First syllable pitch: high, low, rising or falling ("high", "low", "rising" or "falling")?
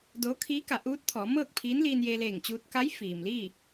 rising